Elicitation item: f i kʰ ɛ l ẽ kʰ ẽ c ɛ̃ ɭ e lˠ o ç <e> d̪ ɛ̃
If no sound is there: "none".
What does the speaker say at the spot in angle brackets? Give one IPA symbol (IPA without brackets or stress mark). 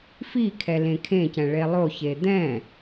e